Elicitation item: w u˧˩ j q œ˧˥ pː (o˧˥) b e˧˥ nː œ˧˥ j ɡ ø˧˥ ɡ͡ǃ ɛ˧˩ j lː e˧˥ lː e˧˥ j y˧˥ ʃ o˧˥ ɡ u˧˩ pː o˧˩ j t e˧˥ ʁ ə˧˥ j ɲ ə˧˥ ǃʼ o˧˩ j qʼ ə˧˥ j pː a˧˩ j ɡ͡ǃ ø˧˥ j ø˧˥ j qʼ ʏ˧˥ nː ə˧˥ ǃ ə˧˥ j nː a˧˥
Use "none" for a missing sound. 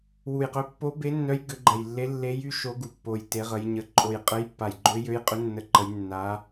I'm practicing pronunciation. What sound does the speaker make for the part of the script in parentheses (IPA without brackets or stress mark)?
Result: o˧˥